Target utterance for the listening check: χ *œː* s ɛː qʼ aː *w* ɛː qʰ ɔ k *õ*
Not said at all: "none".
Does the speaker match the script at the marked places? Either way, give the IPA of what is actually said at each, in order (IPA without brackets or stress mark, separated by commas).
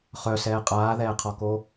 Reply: œ, ð, o